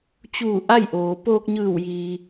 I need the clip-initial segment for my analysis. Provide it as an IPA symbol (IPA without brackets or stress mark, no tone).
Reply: t͡ɕ